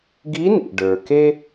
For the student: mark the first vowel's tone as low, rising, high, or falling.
rising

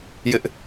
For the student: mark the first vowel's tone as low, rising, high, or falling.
high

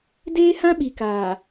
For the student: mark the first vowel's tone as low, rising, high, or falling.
high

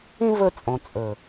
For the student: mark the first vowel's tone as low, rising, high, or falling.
high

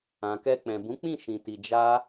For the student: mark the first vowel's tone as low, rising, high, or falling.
low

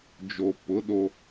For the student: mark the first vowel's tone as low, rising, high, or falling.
low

